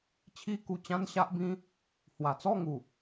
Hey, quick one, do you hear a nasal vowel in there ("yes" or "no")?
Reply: yes